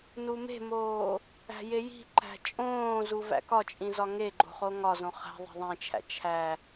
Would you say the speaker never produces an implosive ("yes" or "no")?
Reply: yes